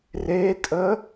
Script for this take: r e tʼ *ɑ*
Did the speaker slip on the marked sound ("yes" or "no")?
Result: yes